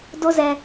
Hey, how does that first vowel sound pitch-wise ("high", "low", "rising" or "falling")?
high